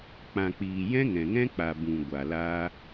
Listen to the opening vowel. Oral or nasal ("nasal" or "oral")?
nasal